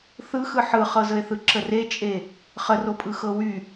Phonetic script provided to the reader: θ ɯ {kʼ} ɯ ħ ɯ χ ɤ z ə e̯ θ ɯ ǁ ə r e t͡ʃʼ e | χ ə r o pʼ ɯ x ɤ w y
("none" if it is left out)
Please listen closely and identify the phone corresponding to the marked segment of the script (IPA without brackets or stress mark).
x